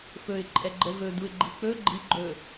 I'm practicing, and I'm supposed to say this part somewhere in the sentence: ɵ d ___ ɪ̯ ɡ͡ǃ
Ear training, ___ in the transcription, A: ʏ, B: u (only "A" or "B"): B